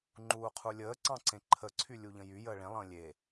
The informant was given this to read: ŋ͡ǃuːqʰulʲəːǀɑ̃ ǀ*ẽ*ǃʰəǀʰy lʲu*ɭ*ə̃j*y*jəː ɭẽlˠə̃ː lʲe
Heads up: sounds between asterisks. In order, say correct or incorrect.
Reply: correct, incorrect: ʎ, correct

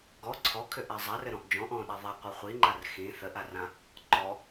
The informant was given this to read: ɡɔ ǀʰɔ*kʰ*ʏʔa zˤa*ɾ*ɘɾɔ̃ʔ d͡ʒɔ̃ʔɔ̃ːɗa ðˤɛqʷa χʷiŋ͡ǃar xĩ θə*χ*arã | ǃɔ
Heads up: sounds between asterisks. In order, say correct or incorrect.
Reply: correct, incorrect: r, incorrect: ʔ

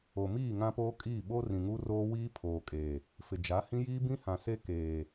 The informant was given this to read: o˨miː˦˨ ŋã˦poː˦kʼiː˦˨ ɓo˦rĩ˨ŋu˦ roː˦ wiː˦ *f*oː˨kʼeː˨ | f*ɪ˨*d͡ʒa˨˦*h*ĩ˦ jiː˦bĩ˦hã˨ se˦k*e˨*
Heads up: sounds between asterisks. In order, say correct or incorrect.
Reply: incorrect: pʰ, correct, correct, incorrect: eː˨

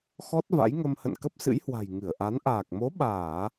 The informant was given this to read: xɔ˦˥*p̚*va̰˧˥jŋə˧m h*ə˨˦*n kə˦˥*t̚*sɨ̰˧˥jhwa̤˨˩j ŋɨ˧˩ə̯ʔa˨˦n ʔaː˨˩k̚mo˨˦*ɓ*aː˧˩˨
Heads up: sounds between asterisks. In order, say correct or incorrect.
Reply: incorrect: t̚, incorrect: ə̰˧˨, incorrect: p̚, correct

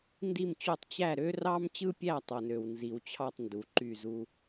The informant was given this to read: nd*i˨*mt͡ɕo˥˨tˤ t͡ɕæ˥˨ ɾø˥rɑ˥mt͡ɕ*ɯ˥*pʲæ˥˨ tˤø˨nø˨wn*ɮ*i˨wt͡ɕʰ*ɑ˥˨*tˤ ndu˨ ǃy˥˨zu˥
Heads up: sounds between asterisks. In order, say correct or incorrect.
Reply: incorrect: i˥˨, correct, incorrect: z, correct

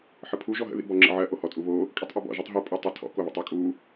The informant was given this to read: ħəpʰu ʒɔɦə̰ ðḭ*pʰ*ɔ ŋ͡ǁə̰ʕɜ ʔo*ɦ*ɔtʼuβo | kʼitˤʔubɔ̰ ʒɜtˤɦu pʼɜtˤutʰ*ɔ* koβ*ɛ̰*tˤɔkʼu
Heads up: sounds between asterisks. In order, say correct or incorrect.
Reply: incorrect: b, incorrect: h, incorrect: ɔ̰, incorrect: ə̰

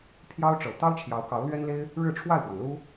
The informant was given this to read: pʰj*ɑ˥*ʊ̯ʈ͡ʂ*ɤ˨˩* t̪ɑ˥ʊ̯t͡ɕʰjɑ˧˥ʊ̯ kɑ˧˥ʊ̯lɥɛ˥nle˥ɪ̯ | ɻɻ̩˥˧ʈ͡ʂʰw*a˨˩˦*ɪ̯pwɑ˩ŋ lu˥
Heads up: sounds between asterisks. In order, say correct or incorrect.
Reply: correct, correct, incorrect: a˥˩

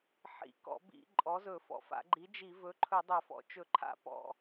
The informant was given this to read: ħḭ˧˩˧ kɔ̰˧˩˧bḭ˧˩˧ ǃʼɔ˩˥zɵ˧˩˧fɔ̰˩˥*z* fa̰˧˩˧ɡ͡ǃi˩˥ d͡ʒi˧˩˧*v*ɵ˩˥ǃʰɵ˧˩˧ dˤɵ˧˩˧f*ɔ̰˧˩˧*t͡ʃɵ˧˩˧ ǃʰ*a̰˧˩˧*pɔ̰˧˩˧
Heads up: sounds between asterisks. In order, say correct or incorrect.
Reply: incorrect: none, correct, incorrect: ɔ̰˩˥, correct

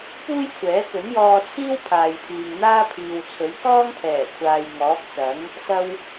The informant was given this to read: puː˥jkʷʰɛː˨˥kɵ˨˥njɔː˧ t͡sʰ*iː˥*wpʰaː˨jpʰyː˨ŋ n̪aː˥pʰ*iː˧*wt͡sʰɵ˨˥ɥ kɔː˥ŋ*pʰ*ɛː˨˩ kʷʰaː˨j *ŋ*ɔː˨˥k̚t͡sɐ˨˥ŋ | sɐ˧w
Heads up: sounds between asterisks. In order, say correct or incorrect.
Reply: correct, incorrect: iː˨, correct, correct

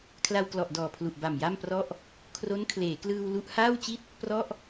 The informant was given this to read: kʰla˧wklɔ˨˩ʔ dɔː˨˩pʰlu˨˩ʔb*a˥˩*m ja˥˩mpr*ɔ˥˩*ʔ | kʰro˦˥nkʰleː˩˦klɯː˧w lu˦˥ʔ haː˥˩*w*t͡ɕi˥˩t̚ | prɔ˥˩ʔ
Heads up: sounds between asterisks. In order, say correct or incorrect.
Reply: incorrect: a˨˩, correct, correct

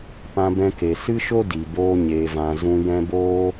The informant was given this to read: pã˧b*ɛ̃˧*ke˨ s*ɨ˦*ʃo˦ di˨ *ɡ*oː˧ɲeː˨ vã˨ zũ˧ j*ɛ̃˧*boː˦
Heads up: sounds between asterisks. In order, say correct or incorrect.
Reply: correct, correct, incorrect: b, correct

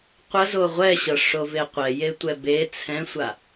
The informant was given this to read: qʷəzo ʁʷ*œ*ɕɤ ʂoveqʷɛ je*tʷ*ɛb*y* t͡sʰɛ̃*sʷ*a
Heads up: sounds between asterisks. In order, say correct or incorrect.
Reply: incorrect: ɛ, correct, incorrect: e, correct

